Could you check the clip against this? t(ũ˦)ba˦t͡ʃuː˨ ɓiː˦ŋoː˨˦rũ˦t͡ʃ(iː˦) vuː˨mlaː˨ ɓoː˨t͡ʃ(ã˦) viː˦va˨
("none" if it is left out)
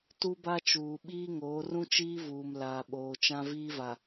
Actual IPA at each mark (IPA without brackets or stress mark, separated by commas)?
u˦, iː˦, ã˦